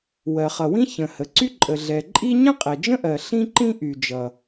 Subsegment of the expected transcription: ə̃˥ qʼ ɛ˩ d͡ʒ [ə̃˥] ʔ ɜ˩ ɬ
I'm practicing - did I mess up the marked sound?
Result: no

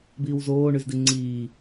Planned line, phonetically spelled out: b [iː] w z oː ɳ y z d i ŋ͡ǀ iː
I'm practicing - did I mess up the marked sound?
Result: no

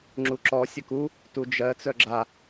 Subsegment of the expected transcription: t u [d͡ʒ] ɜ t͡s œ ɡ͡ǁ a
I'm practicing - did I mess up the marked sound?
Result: no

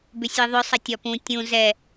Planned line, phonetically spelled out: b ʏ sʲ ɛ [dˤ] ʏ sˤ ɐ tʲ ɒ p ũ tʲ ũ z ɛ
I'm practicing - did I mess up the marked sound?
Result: yes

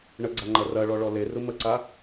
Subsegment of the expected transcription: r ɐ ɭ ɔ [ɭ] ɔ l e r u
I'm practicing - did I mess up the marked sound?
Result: no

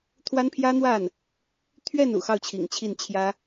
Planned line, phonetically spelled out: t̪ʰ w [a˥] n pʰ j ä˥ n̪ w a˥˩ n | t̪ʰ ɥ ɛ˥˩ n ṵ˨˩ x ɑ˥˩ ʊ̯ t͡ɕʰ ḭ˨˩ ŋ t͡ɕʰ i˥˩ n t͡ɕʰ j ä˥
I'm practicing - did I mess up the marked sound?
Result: no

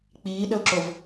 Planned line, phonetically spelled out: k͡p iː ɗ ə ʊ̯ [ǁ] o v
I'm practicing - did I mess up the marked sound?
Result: no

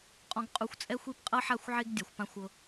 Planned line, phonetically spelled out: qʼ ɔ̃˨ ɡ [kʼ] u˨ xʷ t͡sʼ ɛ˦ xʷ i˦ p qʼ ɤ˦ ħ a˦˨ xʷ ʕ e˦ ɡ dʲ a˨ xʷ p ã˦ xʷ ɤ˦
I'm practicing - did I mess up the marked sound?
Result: yes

